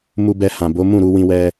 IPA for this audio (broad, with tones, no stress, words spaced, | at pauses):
mu˧bɛ˧hã˨bo˨˦ mũ˦˨ɾu˧wĩ˧wɛ˧